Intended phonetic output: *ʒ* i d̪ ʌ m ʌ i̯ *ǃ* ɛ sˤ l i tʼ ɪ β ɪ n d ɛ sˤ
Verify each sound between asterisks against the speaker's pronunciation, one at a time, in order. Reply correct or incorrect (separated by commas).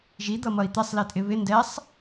correct, incorrect